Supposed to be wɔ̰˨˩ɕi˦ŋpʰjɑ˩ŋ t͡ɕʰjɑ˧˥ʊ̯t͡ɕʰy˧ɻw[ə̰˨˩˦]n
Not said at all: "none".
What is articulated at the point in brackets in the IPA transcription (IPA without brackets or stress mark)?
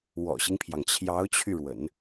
ə̰˨˩˦